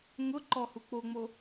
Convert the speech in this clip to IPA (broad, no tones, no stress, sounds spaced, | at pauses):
ŋ ʊ ǃ ɔ h u k͡p o ŋ͡m o